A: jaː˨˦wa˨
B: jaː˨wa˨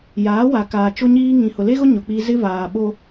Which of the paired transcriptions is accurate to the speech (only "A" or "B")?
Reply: A